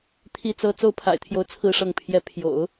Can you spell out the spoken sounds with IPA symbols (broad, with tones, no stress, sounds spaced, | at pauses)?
t̪ʰ i˥˩ t͡s ɤ˥ t͡s o˥˩ ʊ̯ pʰ a̰˨˩ ɪ̯ t̪ʰ j o˧˥ ʊ̯ t͡sʰ ɹ̩˥˧ ʂ ɤ˥˧ ŋ pʰ j ɛ˥˩ pʰ j o̰˨˩˦ ʊ̯